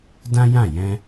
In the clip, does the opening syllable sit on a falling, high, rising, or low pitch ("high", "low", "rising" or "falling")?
high